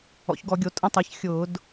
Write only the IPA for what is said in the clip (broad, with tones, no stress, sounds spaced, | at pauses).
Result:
ɔ̰˩˧ ç ɡ ɔ˧˩˧ ɡʲ o˩˧ tʼ ə̃˧ tˤ ɛ˩˧ ç xʲ ʊː˧˩˧ d